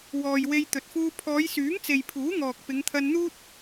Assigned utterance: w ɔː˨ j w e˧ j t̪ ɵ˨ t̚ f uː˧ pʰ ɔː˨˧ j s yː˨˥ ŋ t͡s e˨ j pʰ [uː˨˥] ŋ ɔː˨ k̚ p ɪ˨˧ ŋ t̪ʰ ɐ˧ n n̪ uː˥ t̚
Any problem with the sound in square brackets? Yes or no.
no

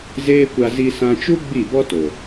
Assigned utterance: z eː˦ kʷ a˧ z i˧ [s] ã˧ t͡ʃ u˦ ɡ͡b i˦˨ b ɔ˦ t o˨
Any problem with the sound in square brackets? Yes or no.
no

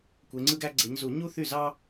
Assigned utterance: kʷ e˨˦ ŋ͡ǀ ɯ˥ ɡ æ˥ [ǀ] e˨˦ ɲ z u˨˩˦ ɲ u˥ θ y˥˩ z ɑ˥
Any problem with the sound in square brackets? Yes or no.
yes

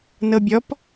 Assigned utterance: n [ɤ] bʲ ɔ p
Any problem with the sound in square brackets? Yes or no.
no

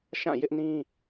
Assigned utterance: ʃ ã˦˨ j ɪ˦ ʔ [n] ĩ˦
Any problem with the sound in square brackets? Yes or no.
no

